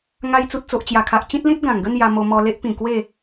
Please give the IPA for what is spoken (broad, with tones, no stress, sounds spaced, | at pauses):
ŋ a˧ j t͡s u˨ t̚ t͡s o˨ ʔ t͡ɕ j a˨˩ kʰ a˨ ʔ t͡ɕ ĩ˦ t̚ l ĩ˦ t̚ ɡ ã˨˩ ŋ ɡ ə˥˧ n j a˧ m o˧ m ɔ˧ l e˦ ʔ p ĩ˨˩ k w e˥˧